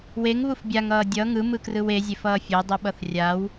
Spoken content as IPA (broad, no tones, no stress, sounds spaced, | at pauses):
w e ŋ β u f bʲ a ŋ ʌː dʲ ʌ ŋ ɯ m ɯ k r ɯ w e zʲ e f ʌː fʲ o dˤ ɯ ɓ ʌ θ rʲ a w